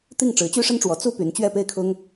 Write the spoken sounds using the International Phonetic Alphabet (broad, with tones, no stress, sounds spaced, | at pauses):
t̪ i˥˩ ŋ ʈ͡ʂ ɻ̩˧˥ t͡ɕ y˥ ʂ ə˥ n ʈ͡ʂ w ɔ˧˥ t͡s u˥ p y˧˥ n t͡ɕ ɥ ɛ˥˧ p e˥˩ ɪ̯ kʰ ʊ˥ ŋ